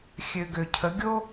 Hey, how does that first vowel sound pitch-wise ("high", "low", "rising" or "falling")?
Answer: low